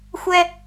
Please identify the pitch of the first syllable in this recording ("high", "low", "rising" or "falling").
high